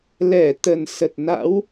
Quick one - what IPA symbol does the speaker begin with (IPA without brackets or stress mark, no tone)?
l